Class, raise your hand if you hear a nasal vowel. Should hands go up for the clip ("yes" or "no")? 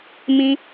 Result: yes